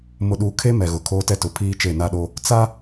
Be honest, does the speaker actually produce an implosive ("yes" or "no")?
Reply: yes